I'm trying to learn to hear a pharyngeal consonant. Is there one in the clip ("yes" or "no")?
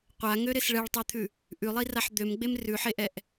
yes